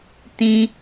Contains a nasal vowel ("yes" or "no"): yes